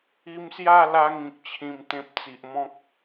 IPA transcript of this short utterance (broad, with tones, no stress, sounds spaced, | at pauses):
i˧ m s j a˥˧ l a˧ ŋ ĩ˨ k̚ t͡ɕʰ ĩ˧ m t̪ ẽ˦ p̚ t͡s i˨ ʔ m ɔ̃˦ k̚